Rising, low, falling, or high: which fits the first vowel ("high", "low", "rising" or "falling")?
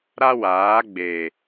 high